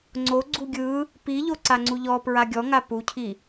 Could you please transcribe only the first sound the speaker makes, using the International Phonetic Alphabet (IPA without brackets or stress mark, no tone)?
ŋ͡ǀ